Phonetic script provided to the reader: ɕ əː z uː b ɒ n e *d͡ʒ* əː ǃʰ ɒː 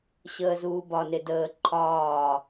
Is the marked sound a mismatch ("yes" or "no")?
yes